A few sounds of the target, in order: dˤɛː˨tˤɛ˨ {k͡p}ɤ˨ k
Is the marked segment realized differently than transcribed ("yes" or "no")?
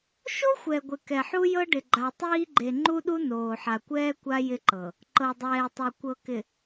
yes